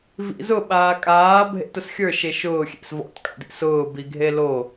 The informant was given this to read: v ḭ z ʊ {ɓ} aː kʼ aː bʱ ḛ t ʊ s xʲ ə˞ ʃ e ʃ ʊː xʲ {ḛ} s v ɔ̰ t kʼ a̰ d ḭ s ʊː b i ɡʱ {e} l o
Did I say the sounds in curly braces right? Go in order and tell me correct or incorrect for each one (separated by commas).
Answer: correct, correct, correct